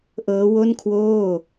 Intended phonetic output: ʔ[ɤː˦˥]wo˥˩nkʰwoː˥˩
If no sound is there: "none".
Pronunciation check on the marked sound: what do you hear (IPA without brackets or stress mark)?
ɤː˦˥